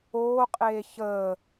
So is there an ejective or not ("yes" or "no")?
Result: yes